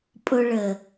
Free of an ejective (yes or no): no